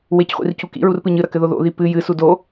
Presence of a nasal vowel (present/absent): absent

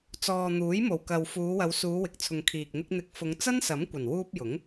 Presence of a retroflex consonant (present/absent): absent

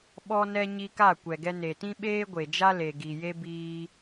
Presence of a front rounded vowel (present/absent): absent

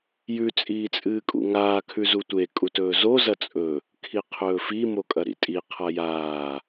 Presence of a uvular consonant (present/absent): present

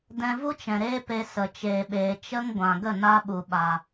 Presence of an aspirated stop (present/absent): absent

